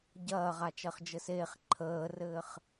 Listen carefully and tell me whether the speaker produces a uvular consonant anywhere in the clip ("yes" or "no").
yes